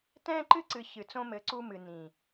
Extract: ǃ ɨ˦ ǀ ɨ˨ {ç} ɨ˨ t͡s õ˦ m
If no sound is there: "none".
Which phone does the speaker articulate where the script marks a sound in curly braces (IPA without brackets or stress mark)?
ç